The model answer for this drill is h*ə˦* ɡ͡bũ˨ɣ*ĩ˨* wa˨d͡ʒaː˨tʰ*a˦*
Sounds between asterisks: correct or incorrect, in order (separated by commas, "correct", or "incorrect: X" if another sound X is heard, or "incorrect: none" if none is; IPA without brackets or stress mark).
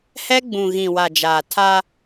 incorrect: ɛ˦, correct, correct